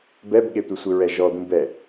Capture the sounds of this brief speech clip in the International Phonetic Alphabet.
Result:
b ɛ b ɠ e tʷ ɪ sʷ ɪ ɹ ɛ ʒ ɔ d̪ ũ b ɛ

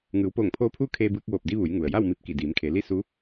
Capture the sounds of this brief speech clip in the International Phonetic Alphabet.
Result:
ŋ ɯː˩˧ w p oː˧˩ ŋ pʰ oː˧ pʰ uː˥˨ kʰ eː˧ b ɯː˧ k̚ ʋ oː˧˩ p̚ d i˧ ʋ u˩˧ j ŋ u˩ ə̯ j a˥˨ w m i˧ p̚ k i˧˩ d iː˩˧ m kʰ e˩˧ l i˥˨ s u˧˥

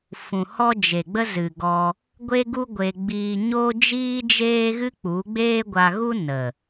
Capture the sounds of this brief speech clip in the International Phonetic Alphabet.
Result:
f ũ˨ h ɔ˦ d͡ʒ e˨ ɡ͡b ə˦ z ɨ˨ ɡ ɔ˧ | ɡʷ e˦ ɡ u˦ ɡʷ e˧ ɡ͡b iː˧ ɲ o˦ d͡ʒ iː˦ d͡ʒ eː˦ ɣ ɨ˦ k͡p u˨˦ ɡ͡b eː˦ ɡʷ a˧ ɣ u˦ n ə˨

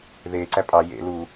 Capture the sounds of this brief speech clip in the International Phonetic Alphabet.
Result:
ð eː ǀ æ pʼ ɑ j ḛ l u

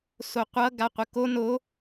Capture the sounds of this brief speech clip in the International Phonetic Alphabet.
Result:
s o qʷ ʌ ɡ a qʷ ə k o n o

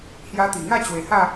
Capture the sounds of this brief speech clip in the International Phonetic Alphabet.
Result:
h j a˧ t̪ i˨˩ ŋ a˥˧ t͡ɕ w e˨˩ h a˥˧

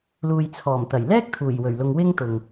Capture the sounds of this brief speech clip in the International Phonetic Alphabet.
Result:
l uː˨ j t͡sʰ ɔː˨˩ m t̪ ɐ˨˩ j l ɛː˥ k̚ t̪ʰ uː˨˩ j w ɵ˨˩ ɥ l ʊ˨ ŋ w ɪ˥ ŋ t̪ ʊ˨ ŋ

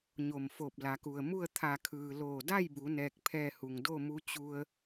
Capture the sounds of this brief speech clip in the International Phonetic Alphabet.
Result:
ɲ o˧˩ m f o˧˩ p̚ l a˩˧ k u˩ ə̯ m u˥˨ ə̯ t̪ʰ a˧˩ kʰ ɯː˩ l oː˧˩ d a˥˨ j b u˩˧ n ɛː˧ k̚ pʰ ɛː˥˨ h u˩ ŋ d o˥˨ m u˧˥ t͡ɕ u˧ ə̯

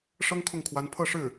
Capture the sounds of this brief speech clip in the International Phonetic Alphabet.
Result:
ʂ ɤ˥ ŋ kʰ ʊ˥˩ ŋ kʰ w a˧˥ n pʰ ɤ˥˧ ʂ ɻ̩˥˩

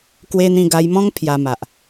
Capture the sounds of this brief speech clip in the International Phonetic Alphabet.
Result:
k w e˦ n̪ ĩ˥˧ ɡ a˧ j m ɔ̃˦ ŋ pʰ j a˧ m a˨ ʔ

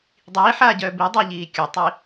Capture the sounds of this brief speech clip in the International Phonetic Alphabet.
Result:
dˤ iː ħ aː ɟ œː b i dˤ əː ʎ iː kʲ ʊ tˤ i

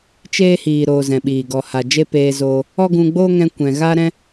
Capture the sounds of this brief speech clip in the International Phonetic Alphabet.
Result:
t͡ʃ eː˦ h iː˨ ɾ oː˧ z ɛ̃˨ ɓ iː˨ ɡ ɔ˨ h a˨ d͡ʒ e˦ p eː˧ z oː˧ | ɔ˦ ɡ ũ˧ ɡ͡b oː˦ ŋ ɛ̃˦ kʷ ɛ̃˨ ɣ a˦ ɾ ɛ̃˦

